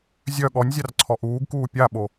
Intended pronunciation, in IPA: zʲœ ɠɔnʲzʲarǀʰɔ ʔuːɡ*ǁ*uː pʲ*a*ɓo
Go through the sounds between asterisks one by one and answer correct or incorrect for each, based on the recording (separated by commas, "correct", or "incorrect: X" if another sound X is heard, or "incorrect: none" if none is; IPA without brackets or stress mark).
incorrect: k, correct